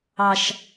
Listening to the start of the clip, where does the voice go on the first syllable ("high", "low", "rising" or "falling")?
low